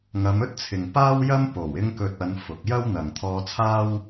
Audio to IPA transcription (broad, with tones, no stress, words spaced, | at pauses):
ŋɐ˨˧mɵ˥t̚t͡sʰɪ˨ŋ paː˥wjɐ˥mpo˨˩w ɪ˥ŋkɵ˧t̚ɐ˨˧n fʊ˨k̚ jɐ˥wn̪ɐ˨ŋ t̪ʰɔː˧t͡sʰaː˥w